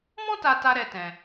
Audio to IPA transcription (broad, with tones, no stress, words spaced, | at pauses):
mɔ̃˦ta˧ta˧ ɾɛ˦tɛ̃˧